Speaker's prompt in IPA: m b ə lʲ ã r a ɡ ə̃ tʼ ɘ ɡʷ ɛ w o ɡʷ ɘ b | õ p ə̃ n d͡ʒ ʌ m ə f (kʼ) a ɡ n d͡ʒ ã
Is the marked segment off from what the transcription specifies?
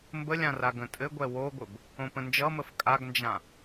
no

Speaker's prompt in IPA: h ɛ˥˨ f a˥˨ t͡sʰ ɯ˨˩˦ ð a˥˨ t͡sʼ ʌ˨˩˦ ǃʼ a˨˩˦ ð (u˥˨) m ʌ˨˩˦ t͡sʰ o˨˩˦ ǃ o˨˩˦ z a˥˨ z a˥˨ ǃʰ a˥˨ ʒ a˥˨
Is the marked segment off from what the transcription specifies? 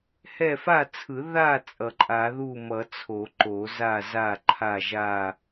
no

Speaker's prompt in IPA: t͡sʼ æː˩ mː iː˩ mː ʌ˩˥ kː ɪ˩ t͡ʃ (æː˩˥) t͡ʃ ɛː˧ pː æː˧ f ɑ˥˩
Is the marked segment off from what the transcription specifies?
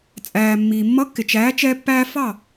no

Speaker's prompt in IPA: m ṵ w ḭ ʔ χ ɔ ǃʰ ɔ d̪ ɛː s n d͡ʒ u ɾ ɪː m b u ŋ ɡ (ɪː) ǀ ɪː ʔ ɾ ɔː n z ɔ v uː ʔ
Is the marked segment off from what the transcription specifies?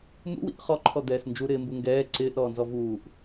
yes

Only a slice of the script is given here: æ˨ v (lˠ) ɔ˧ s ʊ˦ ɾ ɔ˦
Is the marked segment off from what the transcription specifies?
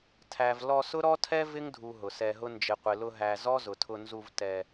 yes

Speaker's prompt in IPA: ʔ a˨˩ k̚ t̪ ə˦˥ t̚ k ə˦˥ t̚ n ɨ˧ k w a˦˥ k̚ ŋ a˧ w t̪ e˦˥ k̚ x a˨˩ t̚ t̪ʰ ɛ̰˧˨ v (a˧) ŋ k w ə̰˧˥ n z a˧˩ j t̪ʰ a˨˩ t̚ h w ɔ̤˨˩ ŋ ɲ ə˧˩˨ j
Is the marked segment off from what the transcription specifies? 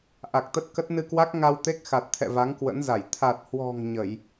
yes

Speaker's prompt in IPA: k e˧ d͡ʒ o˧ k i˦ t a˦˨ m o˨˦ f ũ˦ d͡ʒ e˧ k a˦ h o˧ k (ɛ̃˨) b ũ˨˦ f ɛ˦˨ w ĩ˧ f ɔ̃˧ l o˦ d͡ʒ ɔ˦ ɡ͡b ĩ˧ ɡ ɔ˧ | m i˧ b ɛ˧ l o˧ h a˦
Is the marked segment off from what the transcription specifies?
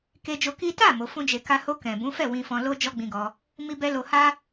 no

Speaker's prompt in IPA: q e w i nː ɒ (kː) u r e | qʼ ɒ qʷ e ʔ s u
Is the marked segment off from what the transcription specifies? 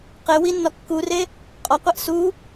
no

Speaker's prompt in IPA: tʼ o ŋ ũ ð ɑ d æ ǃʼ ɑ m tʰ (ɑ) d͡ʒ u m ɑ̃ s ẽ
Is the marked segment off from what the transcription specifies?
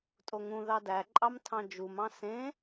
yes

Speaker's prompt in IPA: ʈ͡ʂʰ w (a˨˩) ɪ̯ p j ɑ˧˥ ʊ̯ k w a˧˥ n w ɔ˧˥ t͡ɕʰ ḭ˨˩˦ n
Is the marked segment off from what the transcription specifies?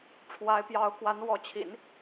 yes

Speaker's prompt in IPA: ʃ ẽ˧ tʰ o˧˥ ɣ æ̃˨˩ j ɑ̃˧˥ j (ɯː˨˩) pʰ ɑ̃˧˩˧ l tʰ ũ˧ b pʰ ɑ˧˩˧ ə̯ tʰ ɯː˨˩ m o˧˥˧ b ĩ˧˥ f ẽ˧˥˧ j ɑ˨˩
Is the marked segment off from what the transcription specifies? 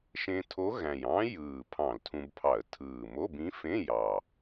no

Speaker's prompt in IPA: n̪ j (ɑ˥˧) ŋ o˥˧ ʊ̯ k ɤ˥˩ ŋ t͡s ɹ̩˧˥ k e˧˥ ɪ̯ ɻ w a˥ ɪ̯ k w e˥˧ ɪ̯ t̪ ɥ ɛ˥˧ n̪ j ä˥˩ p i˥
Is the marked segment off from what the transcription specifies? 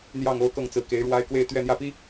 no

